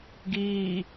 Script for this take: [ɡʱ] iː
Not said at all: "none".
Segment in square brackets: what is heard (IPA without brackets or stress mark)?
ɡ